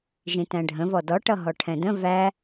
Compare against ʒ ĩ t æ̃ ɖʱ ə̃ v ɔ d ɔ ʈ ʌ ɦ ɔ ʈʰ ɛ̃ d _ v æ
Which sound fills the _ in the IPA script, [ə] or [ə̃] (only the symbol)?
ə̃